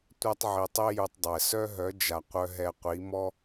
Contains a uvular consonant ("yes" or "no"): yes